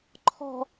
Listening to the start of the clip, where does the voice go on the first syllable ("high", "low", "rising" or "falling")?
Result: low